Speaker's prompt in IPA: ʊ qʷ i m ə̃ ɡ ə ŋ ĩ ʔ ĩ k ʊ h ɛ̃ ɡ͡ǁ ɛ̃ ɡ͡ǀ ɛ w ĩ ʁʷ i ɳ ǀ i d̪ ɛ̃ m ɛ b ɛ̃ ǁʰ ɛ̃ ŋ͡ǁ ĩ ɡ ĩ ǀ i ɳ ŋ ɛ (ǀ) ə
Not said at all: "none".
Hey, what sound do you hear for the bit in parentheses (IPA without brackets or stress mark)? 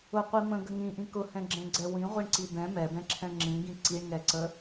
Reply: ǀ